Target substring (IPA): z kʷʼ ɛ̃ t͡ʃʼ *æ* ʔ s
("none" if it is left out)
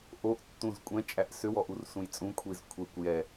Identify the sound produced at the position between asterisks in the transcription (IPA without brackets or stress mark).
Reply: æ